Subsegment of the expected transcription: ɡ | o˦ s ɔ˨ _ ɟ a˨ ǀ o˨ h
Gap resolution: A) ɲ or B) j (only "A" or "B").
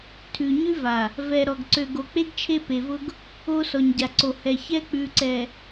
A